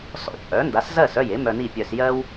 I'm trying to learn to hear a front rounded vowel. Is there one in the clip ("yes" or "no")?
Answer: yes